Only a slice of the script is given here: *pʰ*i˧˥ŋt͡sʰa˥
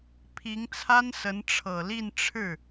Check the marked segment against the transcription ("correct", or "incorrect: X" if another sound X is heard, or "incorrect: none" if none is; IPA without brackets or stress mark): correct